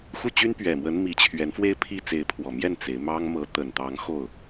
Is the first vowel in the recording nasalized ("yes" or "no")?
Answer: no